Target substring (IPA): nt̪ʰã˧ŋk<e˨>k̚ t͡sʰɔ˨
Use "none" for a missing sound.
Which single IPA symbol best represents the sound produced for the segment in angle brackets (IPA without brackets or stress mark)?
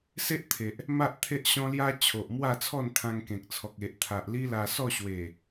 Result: ẽ˨